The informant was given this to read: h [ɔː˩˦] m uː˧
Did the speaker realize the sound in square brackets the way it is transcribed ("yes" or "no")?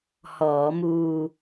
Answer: yes